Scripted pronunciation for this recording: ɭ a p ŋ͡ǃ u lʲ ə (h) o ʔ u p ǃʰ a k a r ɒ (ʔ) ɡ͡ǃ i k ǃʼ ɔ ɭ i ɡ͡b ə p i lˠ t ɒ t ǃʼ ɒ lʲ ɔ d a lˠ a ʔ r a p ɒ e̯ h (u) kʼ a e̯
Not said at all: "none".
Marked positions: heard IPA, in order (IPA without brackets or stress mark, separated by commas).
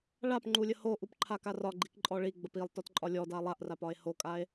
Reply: h, none, o